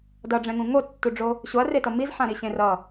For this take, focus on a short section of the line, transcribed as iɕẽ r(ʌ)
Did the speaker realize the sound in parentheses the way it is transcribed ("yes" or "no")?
yes